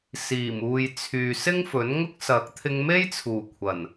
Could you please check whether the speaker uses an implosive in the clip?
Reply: no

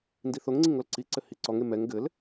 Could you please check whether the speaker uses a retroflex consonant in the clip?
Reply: no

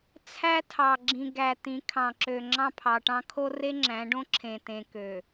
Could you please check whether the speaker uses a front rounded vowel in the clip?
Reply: yes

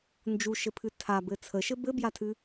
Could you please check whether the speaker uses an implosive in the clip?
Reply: no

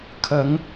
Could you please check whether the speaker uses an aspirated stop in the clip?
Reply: yes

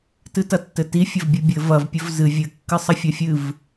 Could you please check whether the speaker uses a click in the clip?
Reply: no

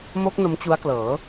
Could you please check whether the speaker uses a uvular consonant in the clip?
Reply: no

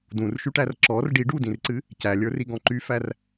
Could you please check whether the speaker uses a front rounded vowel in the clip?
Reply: yes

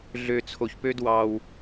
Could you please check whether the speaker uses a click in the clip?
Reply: no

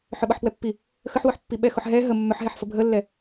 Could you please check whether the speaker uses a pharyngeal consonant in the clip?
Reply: yes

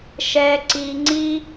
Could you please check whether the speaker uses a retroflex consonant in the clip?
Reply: no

